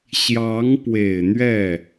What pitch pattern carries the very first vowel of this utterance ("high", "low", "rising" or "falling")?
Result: rising